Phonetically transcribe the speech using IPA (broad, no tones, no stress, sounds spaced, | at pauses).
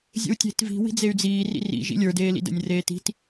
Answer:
zʲ ə̰ u̯ tʲ e̤ t v i̤ w i̤ d͡z e y̯ d͡z iː r ḭ r ḭ ʒ ḭ lʲ ə˞ d eː l ḭ d ə̰ nʲ r eː t i̤ t